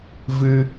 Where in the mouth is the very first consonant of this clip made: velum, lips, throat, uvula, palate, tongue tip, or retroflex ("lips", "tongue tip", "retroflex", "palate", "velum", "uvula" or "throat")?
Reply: lips